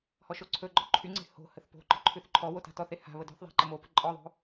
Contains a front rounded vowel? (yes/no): yes